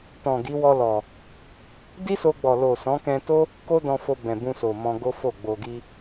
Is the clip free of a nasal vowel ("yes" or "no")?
no